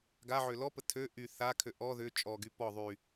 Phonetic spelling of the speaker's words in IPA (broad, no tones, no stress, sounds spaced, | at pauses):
ɡ a ʕ ø l ɔ p ə tʰ ø ʔ y θ a kʰ ø ʔ ɔ ð ʏ t͡ʃʼ ɔ ɡ y p ɔ ðˤ y